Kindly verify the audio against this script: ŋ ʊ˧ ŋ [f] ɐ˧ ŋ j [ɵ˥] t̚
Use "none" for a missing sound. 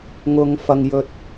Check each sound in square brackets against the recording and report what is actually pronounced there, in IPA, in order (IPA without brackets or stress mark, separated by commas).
f, ɵ˧